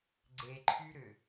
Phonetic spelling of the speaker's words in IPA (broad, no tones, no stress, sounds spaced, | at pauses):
ɡ͡ǀ e ǃʰ y ɾ ʏ